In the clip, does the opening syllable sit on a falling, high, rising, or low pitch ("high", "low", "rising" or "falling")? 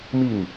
falling